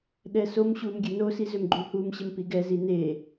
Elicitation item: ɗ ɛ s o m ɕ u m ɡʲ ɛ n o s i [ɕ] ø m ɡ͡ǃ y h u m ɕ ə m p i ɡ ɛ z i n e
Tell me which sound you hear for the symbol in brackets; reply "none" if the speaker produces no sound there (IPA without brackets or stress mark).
z